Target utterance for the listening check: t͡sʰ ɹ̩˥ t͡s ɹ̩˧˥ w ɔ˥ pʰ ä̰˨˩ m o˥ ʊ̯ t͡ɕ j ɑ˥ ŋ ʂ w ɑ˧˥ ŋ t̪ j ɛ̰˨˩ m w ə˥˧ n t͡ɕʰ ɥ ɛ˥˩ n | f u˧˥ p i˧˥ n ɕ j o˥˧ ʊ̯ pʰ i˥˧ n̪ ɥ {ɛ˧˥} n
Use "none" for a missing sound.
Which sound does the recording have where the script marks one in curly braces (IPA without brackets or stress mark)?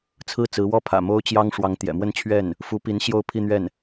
ɛ˥˩